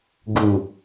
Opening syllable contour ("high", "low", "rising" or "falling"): low